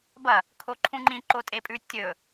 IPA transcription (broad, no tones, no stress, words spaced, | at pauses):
bɐ | kʰoǃʰũŋ͡ǃĩ ǃotʼepʼʉ tʲɵ